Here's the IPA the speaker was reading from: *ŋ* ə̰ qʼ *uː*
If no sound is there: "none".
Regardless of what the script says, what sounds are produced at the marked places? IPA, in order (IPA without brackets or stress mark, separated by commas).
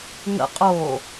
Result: ŋ, oː